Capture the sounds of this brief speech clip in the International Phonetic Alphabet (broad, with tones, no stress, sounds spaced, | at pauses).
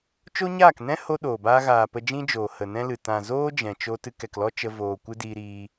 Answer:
t͡ʃ o˦ ɲ aː˦˨ k n ɛ̃˦ h o˦ ɗ oː˨ b aː˦ ɣ aː˨ p ə˧ d͡ʒ ĩ˦ d͡ʒ oː˨ h ə˨ n ɛ̃˦ l ɨ˨ t ã˨ z oː˦ d͡ʒ ɛ̃˨ t͡ʃ o˦ t ɨ˧ k ɛ˨ k l ɔ˦ t͡ʃ ə˧ v oː˨ kʷ ɨ˦ d iː˧ ɾ iː˧